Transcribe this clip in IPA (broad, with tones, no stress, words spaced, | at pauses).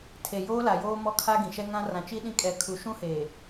tʰe˨joː˦la˨joː˦ mɔ˦kʰa˦ ɡĩ˨ʃɛ˦ ŋã˦ rã˨t͡ʃi˦ɗĩ˦ kʼɛ˦kʰu˦ ʃũ˦heː˨